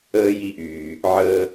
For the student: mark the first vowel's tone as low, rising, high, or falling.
high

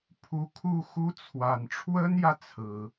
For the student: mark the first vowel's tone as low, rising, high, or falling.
rising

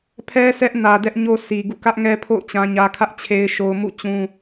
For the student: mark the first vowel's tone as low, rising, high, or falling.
high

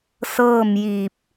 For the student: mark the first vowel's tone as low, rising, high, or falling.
falling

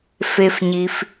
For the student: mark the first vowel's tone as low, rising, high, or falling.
low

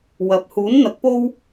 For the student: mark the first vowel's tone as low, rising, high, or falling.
rising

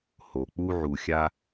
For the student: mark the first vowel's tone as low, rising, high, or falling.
low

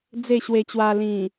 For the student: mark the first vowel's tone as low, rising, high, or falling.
falling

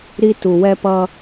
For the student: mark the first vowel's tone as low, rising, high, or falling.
high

